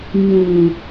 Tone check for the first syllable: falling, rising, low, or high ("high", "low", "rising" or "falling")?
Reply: low